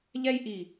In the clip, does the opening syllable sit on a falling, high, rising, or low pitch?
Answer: high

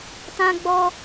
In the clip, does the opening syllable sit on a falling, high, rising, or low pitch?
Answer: high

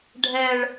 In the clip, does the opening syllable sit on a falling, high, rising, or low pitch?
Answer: high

